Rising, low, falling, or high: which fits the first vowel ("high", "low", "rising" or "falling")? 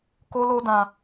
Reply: high